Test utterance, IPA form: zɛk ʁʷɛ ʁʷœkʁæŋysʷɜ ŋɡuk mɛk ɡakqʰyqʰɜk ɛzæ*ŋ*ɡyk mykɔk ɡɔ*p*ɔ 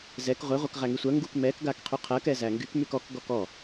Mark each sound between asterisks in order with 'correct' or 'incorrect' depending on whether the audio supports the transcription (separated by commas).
correct, incorrect